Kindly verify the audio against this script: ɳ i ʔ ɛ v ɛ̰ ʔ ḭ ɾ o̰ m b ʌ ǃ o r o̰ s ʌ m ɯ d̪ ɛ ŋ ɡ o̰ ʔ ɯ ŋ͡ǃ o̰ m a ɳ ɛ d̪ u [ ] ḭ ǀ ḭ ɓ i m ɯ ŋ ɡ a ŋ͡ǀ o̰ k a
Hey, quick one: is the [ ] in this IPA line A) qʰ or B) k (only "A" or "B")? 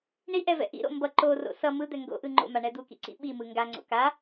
B